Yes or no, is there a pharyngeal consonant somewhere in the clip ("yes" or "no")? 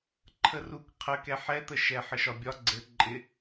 yes